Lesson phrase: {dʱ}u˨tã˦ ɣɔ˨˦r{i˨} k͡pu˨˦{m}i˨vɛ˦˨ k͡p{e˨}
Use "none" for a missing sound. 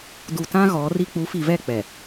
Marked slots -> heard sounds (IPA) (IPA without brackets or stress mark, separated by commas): d, i˦, f, ɛ˨